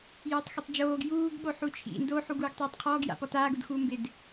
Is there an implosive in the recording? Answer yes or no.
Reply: yes